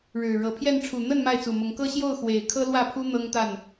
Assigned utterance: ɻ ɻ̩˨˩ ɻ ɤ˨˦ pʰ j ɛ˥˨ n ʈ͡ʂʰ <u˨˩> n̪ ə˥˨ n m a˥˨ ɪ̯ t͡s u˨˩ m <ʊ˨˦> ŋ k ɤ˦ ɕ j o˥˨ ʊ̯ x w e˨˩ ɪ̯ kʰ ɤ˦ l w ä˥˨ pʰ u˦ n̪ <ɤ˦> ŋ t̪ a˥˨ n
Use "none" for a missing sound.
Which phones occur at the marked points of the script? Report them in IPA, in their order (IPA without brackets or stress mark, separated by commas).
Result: u˨˩, ʊ˨˦, ɤ˦